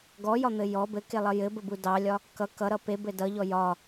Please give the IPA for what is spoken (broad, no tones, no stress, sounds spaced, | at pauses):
ɡ ɔ j ɒ n̪ ɘ j ɔ b ɘ k e lˠ ʌ j ɘ b ə b u d ɑ lʲ ɒ | k ʌ k ʌ ɾ ʌ p e b ɘ d ʌ ʎ ɔ j ɒ